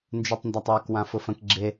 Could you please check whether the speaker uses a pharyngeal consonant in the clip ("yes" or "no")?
no